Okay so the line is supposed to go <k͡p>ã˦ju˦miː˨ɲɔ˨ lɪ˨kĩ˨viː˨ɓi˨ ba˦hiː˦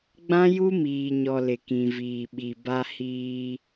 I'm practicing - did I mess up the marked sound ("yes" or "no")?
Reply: yes